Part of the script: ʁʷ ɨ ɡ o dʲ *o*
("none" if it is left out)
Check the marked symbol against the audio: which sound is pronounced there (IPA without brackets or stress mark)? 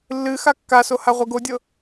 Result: ɤ